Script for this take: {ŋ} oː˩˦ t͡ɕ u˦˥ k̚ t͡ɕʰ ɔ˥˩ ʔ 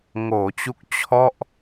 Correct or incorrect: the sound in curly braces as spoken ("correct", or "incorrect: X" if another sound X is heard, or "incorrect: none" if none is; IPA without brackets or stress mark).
correct